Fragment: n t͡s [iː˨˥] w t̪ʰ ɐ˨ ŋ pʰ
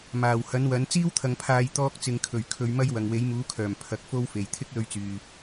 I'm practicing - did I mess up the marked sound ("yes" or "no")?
yes